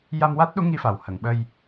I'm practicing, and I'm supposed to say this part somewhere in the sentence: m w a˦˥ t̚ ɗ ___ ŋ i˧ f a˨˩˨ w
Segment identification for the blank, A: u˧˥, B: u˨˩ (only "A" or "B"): A